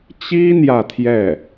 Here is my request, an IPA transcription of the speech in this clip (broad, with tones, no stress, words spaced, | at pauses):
t͡ɕi˥ n̪jä˥˧t̪ʰjɛ˥˩